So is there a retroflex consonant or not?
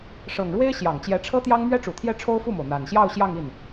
yes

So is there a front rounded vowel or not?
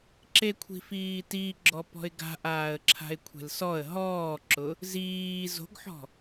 no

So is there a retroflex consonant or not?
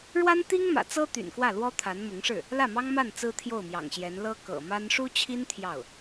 yes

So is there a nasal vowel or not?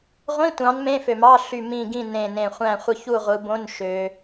yes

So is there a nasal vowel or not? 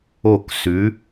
no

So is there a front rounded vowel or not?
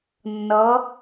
no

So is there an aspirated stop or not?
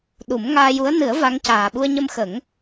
no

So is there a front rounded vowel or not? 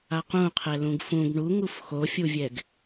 no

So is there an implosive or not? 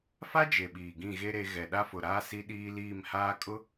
yes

